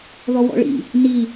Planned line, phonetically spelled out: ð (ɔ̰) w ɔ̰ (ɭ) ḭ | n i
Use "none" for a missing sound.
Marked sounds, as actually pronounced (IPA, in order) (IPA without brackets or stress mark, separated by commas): ɔ, ɭ